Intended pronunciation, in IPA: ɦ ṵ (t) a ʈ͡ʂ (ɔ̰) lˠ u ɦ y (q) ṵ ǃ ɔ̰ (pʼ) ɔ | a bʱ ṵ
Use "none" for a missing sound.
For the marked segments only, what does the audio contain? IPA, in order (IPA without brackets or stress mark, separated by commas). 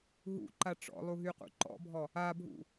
ǃ, ɔ̰, q, bʱ